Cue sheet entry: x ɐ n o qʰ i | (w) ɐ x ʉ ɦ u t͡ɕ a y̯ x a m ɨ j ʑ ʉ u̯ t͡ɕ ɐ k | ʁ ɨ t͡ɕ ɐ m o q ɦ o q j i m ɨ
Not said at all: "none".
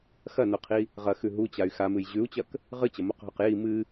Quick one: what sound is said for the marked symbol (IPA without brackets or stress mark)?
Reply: ʁ